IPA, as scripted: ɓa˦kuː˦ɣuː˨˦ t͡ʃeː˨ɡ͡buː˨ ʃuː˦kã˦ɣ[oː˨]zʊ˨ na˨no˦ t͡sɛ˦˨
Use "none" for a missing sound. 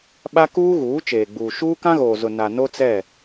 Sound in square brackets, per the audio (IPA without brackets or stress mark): oː˨